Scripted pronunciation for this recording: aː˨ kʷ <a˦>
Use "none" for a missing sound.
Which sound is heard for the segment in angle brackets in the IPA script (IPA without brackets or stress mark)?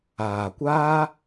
aː˦